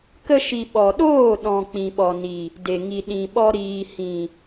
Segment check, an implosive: present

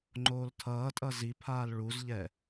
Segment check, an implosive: absent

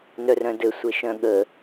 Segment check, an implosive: present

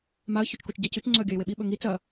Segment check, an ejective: absent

